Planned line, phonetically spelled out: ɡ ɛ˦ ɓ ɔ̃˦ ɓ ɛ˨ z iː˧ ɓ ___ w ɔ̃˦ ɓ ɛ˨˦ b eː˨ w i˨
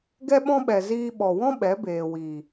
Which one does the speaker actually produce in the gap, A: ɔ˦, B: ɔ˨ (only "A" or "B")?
B